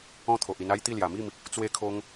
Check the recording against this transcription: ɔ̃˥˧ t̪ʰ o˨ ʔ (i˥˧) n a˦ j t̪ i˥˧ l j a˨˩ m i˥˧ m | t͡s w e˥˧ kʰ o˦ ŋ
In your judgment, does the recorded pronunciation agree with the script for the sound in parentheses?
no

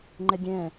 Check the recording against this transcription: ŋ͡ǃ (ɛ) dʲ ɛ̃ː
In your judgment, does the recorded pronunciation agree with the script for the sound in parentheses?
yes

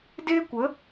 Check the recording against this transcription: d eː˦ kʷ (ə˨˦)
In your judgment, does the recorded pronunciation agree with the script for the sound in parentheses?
yes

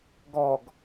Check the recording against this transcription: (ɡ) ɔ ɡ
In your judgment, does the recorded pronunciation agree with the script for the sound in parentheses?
yes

